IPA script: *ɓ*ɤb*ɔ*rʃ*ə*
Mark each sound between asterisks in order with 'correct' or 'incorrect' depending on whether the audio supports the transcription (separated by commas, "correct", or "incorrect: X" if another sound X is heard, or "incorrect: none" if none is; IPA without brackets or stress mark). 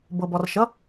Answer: incorrect: b, correct, incorrect: ʌ